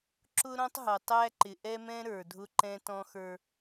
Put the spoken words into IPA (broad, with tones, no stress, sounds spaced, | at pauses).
ǁ ʊ˦ ɾ ɔ̃˦ tˤ ɦ ʌ˨ tˤ æ˦ ǃ ɪ˨ ʔ ɛ˦ m ɛ̃˦ ɾ ə˞˨ dʱ ʊ˦ ǃ ɛ̃˦ t ɔ̃˦ x ə˞˦